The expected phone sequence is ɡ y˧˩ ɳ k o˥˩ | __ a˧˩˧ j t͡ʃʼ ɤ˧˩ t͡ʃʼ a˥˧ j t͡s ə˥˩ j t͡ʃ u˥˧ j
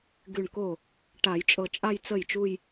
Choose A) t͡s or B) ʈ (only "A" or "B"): B